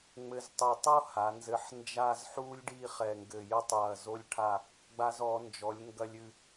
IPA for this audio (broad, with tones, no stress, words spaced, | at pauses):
ŋ͡mɘ˧ztˤu˧˩tˤo˥ ha˩˧nzɘ˧ħ nd͡ʒa˥˧zħu˥lʲ ɖi˥˧χɛ˧˩ŋɡɘ˧˩ jɘ˥˧tˤjɐ˧˩ zo˧lʲʈʰa˧˩ | ɡ͡ba˧zɔ˩˧nd͡ʒɔ˩˧lʲ ŋɡɐ˧lʲɨ˧˩